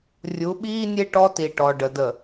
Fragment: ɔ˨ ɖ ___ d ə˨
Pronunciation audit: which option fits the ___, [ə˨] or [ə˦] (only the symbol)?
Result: ə˨